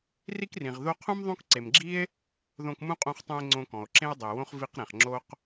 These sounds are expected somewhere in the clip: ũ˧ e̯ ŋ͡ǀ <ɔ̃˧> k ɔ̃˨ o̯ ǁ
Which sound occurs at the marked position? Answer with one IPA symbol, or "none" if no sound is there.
õ˧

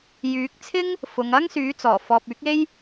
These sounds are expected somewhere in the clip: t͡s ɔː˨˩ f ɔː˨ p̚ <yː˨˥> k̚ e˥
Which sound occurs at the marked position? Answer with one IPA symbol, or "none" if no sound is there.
yː˨˥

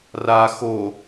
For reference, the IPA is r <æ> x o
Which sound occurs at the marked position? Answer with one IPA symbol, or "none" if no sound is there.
a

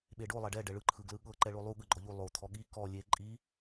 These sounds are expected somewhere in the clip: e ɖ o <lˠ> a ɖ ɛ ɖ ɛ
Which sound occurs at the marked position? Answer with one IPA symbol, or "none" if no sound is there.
lˠ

